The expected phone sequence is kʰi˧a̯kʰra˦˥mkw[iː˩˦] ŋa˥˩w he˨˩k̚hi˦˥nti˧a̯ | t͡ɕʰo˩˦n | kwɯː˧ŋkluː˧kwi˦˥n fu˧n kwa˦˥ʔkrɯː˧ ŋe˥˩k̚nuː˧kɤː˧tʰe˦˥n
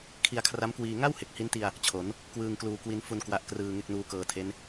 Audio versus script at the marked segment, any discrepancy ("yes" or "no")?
yes